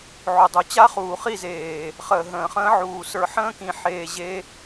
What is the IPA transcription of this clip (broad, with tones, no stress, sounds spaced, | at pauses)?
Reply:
ʕ o˨ dˤ o˨˦ t͡ɕ a˦ χ uː˨ χ i˦˨ z eː˨ | χ əː˨ ɦ ə̃ː˨ χ ə̃ː˦ ʕ uː˨ s ə˞˧ ħ ə̃ː˦ k ĩ˨ ħ eː˧ ʑ e˦